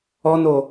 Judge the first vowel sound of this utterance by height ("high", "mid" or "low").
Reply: mid